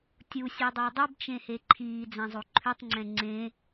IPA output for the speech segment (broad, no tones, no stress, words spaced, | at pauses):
tʲusʲʉdˤe dˤʉbt͡ʃẽhe ǃʰiːd͡zɛ̃zˤo ǃʰʉtˤŋ͡ǀɛ̃ ŋ͡ǀẽ